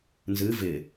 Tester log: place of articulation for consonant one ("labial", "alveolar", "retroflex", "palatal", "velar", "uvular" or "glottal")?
alveolar